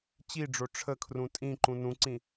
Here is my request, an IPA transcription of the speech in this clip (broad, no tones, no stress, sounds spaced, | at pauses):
t͡ɕ i ɖ͡ʐ o ʈ͡ʂʰ ə kʰ r ũ tʼ ĩ ǃ ũ n ũ ǀ ĩ